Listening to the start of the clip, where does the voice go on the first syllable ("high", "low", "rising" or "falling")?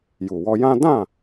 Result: low